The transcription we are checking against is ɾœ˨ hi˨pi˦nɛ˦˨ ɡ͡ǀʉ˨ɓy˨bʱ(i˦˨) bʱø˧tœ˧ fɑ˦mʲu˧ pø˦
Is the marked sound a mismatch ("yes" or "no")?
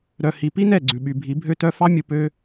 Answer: yes